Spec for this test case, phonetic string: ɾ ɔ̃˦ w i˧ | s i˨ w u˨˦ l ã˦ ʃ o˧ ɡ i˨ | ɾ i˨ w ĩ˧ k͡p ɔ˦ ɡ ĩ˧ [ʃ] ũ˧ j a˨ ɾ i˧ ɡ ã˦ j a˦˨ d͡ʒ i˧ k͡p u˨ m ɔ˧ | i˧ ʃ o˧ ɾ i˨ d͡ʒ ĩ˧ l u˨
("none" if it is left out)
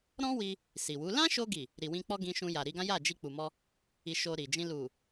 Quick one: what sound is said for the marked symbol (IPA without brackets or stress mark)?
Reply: ʃ